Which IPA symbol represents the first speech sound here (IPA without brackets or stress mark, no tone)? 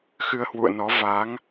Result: x